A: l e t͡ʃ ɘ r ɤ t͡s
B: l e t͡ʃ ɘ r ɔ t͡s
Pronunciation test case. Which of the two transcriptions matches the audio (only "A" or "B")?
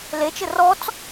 B